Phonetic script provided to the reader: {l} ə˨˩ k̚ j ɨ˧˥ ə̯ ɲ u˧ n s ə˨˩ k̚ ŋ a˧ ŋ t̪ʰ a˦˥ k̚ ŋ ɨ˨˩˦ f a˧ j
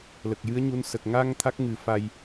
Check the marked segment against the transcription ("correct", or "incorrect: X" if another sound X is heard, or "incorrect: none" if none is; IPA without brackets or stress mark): correct